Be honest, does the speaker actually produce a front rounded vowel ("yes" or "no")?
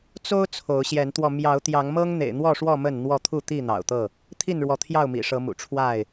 no